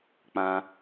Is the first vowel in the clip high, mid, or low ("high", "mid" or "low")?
low